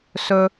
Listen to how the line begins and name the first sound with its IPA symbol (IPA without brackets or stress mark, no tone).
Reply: s